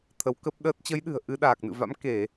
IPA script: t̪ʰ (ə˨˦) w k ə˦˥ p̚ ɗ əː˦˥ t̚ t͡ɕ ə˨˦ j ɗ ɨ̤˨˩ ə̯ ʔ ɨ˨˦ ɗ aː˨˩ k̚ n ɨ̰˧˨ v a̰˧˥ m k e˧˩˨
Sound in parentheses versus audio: correct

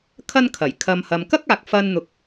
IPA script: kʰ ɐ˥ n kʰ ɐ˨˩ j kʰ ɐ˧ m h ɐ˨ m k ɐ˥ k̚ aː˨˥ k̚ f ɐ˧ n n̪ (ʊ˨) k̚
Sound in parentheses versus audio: correct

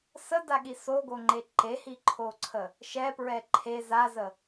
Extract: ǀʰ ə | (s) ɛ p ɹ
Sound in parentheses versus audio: incorrect: ʃ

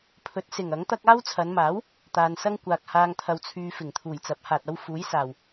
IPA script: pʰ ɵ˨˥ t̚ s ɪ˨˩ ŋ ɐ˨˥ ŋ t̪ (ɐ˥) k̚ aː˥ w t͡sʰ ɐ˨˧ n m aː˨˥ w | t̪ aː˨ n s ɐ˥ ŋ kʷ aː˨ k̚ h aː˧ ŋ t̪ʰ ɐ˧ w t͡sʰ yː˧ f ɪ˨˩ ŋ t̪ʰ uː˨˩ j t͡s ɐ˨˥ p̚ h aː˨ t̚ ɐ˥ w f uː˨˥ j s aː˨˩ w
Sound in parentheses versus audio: correct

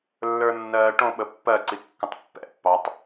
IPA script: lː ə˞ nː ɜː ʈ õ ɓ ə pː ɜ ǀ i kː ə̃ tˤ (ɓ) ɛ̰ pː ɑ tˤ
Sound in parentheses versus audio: incorrect: pː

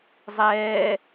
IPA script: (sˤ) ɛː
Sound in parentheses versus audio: incorrect: zˤ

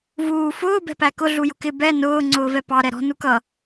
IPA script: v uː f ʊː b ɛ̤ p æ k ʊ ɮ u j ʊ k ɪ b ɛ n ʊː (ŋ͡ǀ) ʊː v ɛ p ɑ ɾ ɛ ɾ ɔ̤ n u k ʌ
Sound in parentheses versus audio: correct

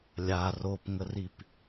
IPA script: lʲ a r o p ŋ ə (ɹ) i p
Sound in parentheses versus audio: incorrect: r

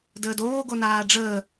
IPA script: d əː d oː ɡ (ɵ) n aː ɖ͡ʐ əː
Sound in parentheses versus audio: incorrect: o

